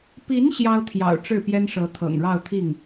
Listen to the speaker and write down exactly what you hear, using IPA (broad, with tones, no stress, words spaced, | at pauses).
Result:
pi˧˥n ɕjɑ˥ʊ̯t̪ʰjɑ̰˨˩ʊ̯ ʈ͡ʂɻ̩˥˩pjɛ˥nʂɤ˧˥ t̪ʰɤ̰˨˩ŋɻɑ˥˧ʊ̯t̪ʰi˥˩ŋ